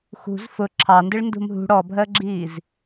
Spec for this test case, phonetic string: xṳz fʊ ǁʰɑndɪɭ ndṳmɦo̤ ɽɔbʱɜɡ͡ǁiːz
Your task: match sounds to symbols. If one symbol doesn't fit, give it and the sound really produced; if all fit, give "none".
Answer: o̤ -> ṳ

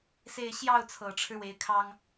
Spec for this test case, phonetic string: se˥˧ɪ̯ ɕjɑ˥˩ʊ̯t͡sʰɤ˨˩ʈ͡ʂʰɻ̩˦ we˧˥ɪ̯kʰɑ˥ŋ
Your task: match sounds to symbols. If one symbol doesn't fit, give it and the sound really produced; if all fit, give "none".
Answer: none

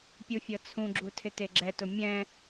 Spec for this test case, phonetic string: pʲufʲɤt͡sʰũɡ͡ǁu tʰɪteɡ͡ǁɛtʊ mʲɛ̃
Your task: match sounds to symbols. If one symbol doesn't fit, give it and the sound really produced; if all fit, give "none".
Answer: none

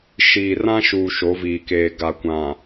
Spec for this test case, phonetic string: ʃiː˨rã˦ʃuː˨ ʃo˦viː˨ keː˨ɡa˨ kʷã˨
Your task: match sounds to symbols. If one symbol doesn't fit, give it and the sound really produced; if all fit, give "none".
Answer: o˦ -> o˨˦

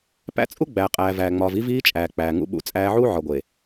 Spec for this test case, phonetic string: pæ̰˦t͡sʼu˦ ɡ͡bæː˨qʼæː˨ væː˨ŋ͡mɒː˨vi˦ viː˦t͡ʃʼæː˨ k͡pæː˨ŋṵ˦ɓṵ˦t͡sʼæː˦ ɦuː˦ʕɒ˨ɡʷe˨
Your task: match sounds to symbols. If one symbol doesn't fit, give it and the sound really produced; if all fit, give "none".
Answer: ɦ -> ʕ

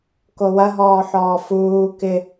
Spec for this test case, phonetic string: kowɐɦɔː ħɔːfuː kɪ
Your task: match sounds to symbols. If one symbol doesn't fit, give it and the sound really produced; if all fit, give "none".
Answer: none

